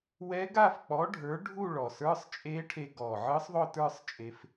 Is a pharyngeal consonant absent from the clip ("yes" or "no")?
no